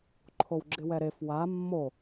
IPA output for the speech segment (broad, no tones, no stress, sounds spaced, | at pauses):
ǃʰ o w ɡ͡ǁ ɪ w ɛ ɾ e f w a mː o